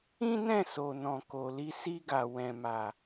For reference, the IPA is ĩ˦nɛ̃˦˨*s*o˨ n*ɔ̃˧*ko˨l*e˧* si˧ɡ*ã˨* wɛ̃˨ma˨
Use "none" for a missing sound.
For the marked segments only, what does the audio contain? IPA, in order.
s, ɔ̃˨, i˧, a˨

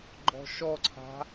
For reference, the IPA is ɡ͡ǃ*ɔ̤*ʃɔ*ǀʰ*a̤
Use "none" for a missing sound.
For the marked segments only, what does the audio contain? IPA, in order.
ɔ̤, ǀʰ

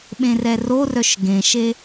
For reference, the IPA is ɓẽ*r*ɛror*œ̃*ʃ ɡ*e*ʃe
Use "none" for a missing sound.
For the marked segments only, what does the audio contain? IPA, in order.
r, œ, ẽ

